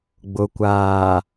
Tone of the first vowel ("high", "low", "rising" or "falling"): low